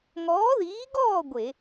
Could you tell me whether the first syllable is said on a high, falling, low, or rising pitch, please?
rising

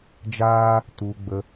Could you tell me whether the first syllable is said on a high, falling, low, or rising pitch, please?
high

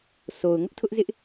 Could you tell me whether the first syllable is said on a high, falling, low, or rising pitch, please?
low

